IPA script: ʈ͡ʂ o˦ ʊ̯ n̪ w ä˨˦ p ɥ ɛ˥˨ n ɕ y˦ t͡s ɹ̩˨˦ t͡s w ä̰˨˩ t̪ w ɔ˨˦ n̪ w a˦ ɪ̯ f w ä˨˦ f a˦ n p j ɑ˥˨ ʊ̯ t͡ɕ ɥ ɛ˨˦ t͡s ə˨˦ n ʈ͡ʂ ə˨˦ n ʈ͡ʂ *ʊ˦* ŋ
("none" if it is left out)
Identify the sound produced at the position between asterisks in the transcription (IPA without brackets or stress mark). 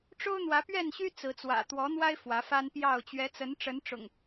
ʊ̰˨˩